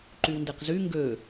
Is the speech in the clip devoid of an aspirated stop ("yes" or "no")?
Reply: yes